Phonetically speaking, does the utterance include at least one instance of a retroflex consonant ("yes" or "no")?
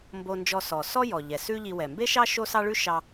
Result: yes